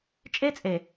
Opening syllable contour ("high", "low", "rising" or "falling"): high